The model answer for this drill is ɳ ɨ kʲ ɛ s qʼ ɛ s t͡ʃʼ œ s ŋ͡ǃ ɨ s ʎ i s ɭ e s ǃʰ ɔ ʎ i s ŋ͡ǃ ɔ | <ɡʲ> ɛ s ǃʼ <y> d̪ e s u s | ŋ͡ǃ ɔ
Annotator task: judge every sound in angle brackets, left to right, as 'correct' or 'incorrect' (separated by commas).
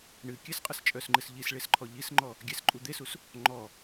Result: correct, incorrect